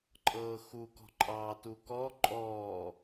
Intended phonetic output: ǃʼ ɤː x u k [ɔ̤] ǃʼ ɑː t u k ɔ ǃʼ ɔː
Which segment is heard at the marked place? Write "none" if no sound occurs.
ɔ̤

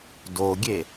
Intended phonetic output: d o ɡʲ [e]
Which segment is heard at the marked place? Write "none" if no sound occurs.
e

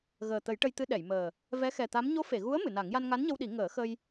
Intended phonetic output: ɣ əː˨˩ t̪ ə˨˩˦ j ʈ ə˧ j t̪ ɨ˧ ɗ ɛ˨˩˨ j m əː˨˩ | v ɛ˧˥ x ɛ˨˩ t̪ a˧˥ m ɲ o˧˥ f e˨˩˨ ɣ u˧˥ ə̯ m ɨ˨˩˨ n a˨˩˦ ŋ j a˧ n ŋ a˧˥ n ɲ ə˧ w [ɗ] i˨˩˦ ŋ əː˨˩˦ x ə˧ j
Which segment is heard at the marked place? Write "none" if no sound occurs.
ɗ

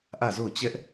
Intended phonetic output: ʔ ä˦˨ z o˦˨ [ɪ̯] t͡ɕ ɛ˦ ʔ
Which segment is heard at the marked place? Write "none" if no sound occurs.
ʊ̯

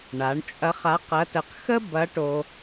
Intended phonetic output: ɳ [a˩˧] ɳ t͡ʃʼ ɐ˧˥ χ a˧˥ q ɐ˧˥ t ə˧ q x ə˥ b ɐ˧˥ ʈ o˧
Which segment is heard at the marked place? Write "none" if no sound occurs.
a˩˧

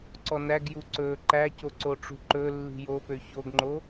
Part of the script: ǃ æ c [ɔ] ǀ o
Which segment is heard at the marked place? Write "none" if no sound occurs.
o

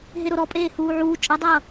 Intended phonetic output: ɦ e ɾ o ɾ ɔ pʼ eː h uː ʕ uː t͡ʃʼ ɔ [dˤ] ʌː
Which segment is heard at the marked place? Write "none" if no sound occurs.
dˤ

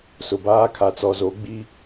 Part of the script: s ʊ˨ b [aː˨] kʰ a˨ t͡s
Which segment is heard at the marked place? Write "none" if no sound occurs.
aː˦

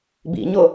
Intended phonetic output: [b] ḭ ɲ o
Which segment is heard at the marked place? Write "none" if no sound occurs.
b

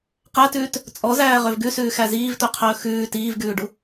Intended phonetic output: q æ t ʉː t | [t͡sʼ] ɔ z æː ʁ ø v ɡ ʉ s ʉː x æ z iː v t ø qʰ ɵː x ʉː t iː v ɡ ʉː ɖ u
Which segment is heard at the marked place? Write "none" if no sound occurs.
t͡sʼ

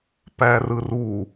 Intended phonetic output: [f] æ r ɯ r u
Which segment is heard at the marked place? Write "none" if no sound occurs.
p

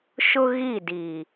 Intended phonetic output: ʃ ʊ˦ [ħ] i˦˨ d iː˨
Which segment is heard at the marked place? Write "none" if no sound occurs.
ɣ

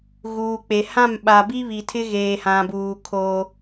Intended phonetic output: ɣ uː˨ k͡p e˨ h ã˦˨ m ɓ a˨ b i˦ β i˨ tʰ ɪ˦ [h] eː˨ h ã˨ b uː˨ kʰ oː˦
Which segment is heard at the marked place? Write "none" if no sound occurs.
ɣ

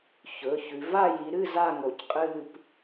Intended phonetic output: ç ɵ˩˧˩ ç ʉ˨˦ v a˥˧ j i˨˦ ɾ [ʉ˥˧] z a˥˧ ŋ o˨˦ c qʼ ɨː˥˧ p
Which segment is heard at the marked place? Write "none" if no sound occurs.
ɨ˥˧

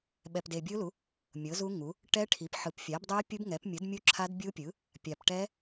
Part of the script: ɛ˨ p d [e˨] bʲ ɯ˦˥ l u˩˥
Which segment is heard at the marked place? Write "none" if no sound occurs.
e˨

